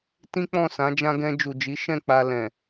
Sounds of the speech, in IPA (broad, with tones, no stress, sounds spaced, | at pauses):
t ĩ˦ k͡p ɔ̃˦˨ s ã˨˦ d͡ʒ ã˧ ɡ ɛ̃˧ d͡ʒ u˨ d͡ʒ i˨˦ ʃ ɛ̃˦˨ k͡p a˧ l ɛ̃˨